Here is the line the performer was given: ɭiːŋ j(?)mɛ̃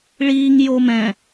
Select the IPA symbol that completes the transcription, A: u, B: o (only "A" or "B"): B